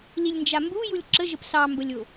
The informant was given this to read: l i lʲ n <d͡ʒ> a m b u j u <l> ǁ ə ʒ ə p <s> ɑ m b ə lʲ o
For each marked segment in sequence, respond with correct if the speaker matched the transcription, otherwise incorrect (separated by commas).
correct, incorrect, correct